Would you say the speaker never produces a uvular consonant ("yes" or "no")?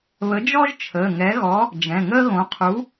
no